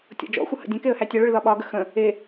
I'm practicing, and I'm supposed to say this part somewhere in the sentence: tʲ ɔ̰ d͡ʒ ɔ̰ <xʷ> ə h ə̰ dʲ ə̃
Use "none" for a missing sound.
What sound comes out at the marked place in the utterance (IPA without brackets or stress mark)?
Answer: xʷ